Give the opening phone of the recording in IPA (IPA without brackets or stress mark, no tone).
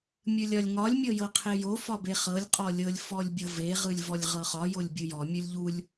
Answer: mʲ